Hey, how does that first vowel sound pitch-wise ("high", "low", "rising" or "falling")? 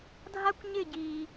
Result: high